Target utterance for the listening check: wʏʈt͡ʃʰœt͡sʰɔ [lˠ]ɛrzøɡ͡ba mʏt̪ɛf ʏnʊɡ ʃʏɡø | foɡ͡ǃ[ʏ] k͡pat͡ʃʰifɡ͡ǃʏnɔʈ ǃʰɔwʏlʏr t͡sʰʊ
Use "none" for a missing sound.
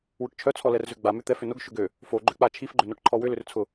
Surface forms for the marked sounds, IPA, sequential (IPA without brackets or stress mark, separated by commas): l, ʏ